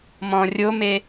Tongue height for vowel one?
mid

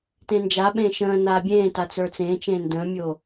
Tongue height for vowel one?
mid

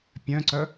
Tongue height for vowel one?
mid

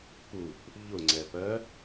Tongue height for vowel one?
high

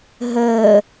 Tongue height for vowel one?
mid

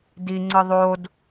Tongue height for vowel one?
high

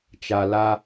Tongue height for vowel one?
low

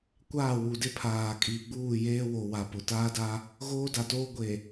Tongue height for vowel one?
low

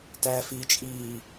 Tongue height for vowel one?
low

